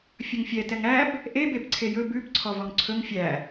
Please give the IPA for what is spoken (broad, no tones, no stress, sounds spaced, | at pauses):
fʲ ɵ ŋ fʲ ɛ t ɛ ŋ æ b | ʔ e b e b ǀʰ e j ɵ b ʉ b ǀʰ ɔ v ɔ ŋ ǀʰ ɵ ŋ fʲ æ